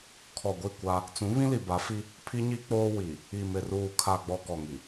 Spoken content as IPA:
kʰ ɔ˨ ɡʷ i˦˨ kʷ a˦ | t͡s ũ˨˦ β ĩ˦ l i˨ b a˨˦ f i˦ | pʰ i˦ ɲ i˦ k͡p oː˦ w i˨ | i˨ m ɪ˨ r uː˨ kʰ a˨ ɡ͡b ɔ˨ k ɔ˨ ŋ i˨

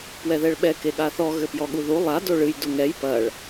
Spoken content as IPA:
p w ɛ ð ɛ ɭ ɓ ɛ k e ɠ a θ ɔ ɣ ɘ p j ɔ ɠ u ð u lˠ a d o ɭ ɨ j d u ŋ ɛ j p ɐ ɭ

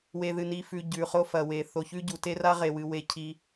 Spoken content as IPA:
w e˨ ð ɨ˨ n i˨ f ʉ˨ ɟ ʉ˨ χ o˦ f ɐ˨ w e˨ θ o˨ ç ʉ˦ ɟ u˨˦ t e˦ r a˦ ʁ e˨ w ɨ˨ w e˦ cʰ i˦

